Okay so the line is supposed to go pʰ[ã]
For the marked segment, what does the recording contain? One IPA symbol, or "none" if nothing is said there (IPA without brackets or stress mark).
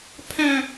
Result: æ̃